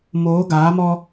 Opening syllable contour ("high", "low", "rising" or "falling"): rising